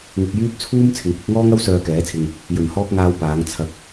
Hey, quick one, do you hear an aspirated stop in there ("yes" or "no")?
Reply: yes